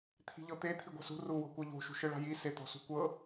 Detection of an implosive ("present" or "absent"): absent